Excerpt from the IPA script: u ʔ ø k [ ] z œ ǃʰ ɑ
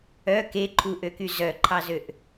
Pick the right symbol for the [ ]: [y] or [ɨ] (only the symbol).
y